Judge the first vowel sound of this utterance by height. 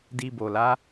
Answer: high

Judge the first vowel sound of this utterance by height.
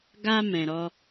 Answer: low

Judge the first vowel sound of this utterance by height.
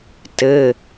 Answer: mid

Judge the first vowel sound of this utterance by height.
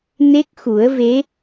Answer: mid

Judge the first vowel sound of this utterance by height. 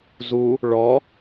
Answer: high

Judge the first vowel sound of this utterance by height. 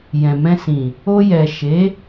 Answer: mid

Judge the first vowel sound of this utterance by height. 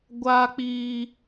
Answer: low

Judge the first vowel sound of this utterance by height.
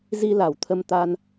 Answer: high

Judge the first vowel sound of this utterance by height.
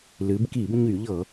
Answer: high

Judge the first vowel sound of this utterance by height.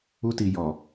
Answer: high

